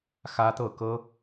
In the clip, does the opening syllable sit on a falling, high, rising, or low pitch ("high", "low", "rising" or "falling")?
high